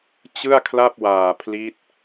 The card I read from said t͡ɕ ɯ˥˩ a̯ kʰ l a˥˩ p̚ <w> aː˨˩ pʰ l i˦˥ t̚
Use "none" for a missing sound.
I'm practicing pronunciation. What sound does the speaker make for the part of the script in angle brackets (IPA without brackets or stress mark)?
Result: w